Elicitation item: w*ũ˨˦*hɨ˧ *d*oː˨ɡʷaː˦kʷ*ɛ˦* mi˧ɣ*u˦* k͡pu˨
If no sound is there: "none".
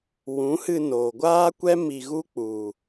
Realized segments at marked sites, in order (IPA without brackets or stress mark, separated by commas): ũ˨˦, n, ɛ˦, u˦